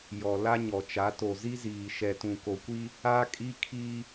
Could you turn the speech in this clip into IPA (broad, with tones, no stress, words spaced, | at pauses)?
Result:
jɔ˨ la˦ɲɔ˨t͡ʃa˨˦ to˨zi˦ziː˨ ʃɛ˨tũ˨ko˨kʷi˦ | a˦ kʼi˦kʰi˦